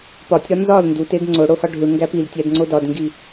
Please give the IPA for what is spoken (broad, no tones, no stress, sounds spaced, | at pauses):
p ɒ tʲ ɾ ɒ n z ɒ l n d u t e d ŋ͡ǀ o ɽ o h ɒ ɖʱ u ɳ ŋ ɡ æ p i l tʲ æ d ŋ͡ǀ o d ɒ d ŋ ɡ i